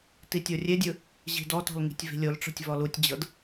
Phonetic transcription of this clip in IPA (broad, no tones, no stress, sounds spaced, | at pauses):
t i tʲ o rʲ e dʲ ɯ | ʑ i̤ d ɔ t ɔ̤ l ŋ i̤ tʲ v i̤ lʲ o l ʈ͡ʂ ɔ̤ tʲ v ɔ l u tʲ d͡ʑ ɤ d